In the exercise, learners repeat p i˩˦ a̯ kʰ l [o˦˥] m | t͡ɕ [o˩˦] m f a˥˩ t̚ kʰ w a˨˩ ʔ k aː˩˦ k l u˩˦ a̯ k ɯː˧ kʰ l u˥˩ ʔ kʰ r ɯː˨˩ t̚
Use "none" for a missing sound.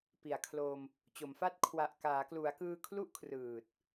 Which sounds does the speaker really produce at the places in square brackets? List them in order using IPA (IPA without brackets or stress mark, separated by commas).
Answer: o˧, o˩˦